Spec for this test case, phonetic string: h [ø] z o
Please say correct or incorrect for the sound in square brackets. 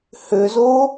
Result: correct